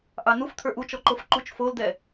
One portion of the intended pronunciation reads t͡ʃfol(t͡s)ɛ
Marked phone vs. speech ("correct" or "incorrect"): incorrect